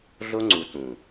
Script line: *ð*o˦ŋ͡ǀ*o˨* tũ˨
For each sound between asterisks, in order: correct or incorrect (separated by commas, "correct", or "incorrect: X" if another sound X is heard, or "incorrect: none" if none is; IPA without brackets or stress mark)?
incorrect: ɮ, incorrect: u˨